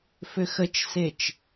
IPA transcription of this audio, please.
f ʏ x ə t͡ʃ s e t͡ʃ

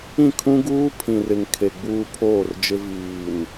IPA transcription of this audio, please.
ĩ˦˨ kʰ ũ˦ ɡ uː˦ pʰ ĩ˨ r ɪ˨ ŋ kʰ e˨ ɡ͡b uː˦ pʰ oː˦˨ r d͡ʒ ɪ˦ v iː˨ n

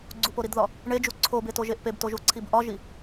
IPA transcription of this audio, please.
ɡ͡ǀ u p o ɾ i d ð ɒ | ɳ e d͡ʒ u ǀʰ o b e t o ʒ e ʔ p e b t o ʒ u ǀʰ i b ʔ ɒ ʒ i

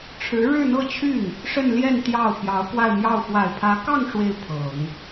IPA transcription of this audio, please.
ʈ͡ʂʰ ɻ̩˧˥ ɻ ɻ̩˥˧ n̪ ɤ˥˧ t͡ɕʰ y˥˩ n | ʂ ə˥˧ n l j ɛ˥˧ n t̪ j ɑ˥˩ ʊ̯ p j ɑ˧˥ ʊ̯ k w a˥˧ ɪ̯ m j ɑ˥˩ ʊ̯ f w a˨˩ ɪ̯ pʰ ä˧˥ k ɑ˥˧ ŋ ʂ w e˥˩ ɪ̯ pʰ ɤ˨˩˦ ŋ

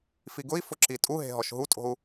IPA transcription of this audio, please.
f i ɡ ʊ i̯ f ʊ ǁ i tʼ u ɦ e̤ ɦ ɔ ʃ ɦ u tʼ o̤ u̯

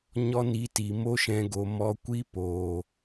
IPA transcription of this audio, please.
ɲ ɔ˦ n i˨˦ t i˨ m o˦ ʃ ɛ̃˧ ɡ o˨ m ɔ˧ kʷ i˦ p oː˨

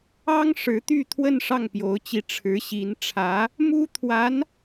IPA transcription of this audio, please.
ɑ˥ ŋ ʂ ɻ̩˧˥ t̪ y˥˧ t̪ʰ w ə˥˧ n ʂ ɑ˥˩ ŋ p j o˧˥ ʊ̯ t͡ɕ i˧˥ ʈ͡ʂʰ ɻ̩˧˥ ɕ i˧˥ n ʈ͡ʂʰ ä˧˥ | m u˥ t̪ʰ w a˧˥ n

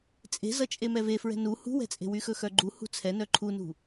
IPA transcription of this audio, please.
t͡sʼ e̤ z ʌ t͡ʃʼ e m ɛ v e f ɹ ɛ̤ n u h ṳ w ɛ̤ t͡sʼ e̤ w y x ɵ x œ ɡ͡ǃ u h ṳ t͡sʰ ɛ n œ ǃʰ u n ṳ

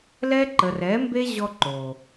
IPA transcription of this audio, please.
l ɛ˦ ǃ ə˨ r ɛ˨˦ m b e˦ ʑ ɔ˧ ǃ o˨

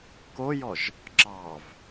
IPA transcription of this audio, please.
k o j ɔ ʒ | ǁ ɑ v

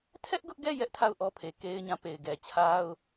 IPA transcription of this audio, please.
tʰ ɛ˦ ʔ ɡ ʊ˦ ʔ ɡ ɛ˦˨ j ɛ˦ ʔ tʰ a˦˨ ʊ̯ ʔ ɔ˦ pʰ e˨ k e˦ ɪ̯ ɲ ã˦ p e˨ ɪ̯ ɡ ɛ˨ t͡ɕʰ a˦ ʊ̯

